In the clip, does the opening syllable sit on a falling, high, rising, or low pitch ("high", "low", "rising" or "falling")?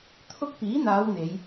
high